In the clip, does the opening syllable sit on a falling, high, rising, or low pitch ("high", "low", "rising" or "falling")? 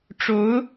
rising